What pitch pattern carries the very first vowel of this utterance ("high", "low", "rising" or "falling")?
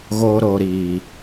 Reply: low